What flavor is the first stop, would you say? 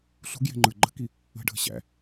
plain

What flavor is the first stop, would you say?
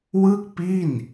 plain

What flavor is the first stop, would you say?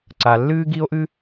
click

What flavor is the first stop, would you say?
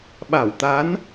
implosive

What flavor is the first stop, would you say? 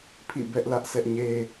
aspirated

